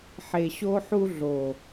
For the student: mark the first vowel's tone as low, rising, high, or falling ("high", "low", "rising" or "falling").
low